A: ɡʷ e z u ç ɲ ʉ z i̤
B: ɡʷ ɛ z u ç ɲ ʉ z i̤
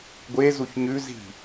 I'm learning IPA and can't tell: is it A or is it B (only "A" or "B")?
A